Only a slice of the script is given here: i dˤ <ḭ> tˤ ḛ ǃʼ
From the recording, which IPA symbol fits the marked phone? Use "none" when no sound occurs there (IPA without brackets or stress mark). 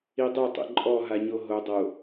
i